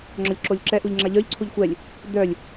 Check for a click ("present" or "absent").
present